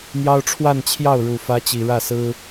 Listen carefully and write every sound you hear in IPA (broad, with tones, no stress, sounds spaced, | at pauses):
n̪ j ɑ˥ ʊ̯ ʈ͡ʂʰ w a˥˧ n t͡ɕʰ j ɑ˥˩ ʊ̯ ɻ u˨˩ f ä˧˥ t͡ɕ i˨˩ ɻ ä˥˩ s ɹ̩˥